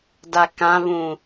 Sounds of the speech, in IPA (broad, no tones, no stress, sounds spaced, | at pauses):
d a k ã β ũ